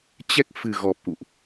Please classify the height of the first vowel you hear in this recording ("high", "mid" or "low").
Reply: mid